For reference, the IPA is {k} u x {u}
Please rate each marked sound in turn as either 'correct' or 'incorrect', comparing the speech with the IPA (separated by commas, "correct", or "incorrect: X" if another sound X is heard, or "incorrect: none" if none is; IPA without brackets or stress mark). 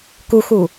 correct, correct